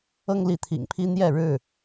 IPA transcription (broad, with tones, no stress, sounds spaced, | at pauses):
ɤ˦ ŋ l i˨˦ t̪ʰ ḭ˨˩ ŋ pʰ i˦ n̪ j ɛ˥˨ ɻ ɻ̩˥˨